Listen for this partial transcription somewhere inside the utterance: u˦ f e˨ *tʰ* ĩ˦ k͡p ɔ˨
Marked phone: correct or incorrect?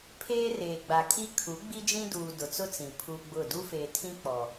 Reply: correct